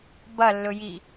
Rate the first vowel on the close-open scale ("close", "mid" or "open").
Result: open